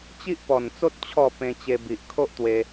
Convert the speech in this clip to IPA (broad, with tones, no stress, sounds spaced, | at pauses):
t͡ɕ i˦ ʔ p ɔ˨˩ n t͡s o˦ t̚ t͡ɕʰ ɔ˥˧ p ẽ˧ t͡ɕ e˧ b i˨ ʔ kʰ o˦ ʔ t̪ w e˧